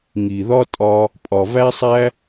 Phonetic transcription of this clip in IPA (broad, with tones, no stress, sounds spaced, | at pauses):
ŋ i˨ ð ɒ˦ tʼ ɒ˧ | pʼ ɒ˨ v æ˦ sˤ æ˦